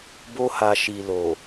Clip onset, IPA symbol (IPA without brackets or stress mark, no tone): b